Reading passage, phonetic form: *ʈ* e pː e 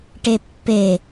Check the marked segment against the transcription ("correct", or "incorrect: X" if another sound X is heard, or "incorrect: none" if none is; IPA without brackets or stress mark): correct